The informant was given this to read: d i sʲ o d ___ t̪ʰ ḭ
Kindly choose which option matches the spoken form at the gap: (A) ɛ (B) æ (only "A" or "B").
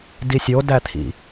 B